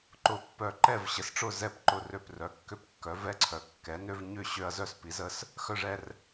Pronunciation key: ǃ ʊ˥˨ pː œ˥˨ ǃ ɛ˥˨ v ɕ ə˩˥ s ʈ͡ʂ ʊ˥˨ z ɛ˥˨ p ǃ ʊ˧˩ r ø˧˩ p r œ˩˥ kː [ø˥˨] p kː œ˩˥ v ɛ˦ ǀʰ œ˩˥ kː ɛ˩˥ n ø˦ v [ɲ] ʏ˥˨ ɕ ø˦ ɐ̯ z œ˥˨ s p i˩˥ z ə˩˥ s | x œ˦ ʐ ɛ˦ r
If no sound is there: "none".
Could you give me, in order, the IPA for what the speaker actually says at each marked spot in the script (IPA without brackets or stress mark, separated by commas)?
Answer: ø˦, ɲ